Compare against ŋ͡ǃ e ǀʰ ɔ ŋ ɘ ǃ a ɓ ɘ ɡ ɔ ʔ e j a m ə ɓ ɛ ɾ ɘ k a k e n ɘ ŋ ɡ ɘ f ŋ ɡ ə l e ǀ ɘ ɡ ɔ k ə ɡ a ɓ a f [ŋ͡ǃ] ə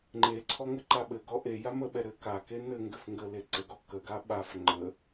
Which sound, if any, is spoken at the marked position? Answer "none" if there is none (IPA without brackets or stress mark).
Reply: ŋ͡ǃ